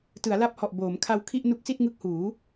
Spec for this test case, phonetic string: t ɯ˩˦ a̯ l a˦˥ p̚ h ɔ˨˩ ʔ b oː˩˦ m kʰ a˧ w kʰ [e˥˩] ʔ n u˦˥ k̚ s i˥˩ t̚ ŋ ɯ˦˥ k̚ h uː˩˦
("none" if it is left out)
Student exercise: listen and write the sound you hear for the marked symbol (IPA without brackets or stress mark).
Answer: i˥˩